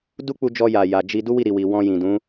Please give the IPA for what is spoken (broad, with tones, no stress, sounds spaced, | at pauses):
d u˦ k͡p u˧ d͡ʒ ɔ˧ j a˨ j a˨ d͡ʒ i˧ d u˦ w i˦˨ ɾ i˨ w i˨ w ɔ̃˧ j ĩ˨ d ũ˨˦